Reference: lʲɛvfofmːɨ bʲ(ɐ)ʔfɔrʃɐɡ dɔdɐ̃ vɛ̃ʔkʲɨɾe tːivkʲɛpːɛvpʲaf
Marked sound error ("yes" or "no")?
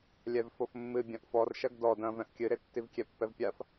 yes